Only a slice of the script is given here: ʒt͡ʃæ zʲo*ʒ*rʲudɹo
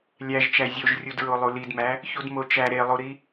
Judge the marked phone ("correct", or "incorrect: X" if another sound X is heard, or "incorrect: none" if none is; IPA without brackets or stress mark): correct